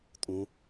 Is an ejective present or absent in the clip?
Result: present